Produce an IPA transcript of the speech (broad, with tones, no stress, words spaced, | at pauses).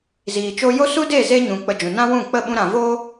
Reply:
ziː˨t͡ʃo˧jo˦ su˦de˦˨ ze˦ɲũ˨ k͡pə˧d͡ʒũ˨ nã˦wũ˦˨ k͡pə˦˨ɓũ˧ ɾã˨voː˦